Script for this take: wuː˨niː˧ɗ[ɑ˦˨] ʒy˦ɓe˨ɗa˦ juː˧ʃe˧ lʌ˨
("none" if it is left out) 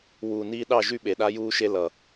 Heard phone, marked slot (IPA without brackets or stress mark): ɑ˦˨